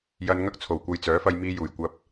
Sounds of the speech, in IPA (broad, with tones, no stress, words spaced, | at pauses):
jɐ˧nŋɐ˥k̚t͡sʰo˨˩w kʷɐ˧jt͡sœː˨˥fɐ˧jmiː˧ juː˨˩j kʷɐ˧p̚